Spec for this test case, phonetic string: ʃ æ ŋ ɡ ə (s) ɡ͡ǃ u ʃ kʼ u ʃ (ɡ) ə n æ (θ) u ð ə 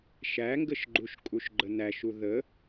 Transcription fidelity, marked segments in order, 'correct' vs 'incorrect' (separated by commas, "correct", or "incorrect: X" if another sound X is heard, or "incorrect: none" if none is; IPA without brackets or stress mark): incorrect: ʃ, incorrect: ɡ͡ǃ, incorrect: ʃ